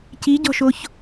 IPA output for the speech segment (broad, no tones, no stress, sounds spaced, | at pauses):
c i ɟ ɔ̤ ʃ o ç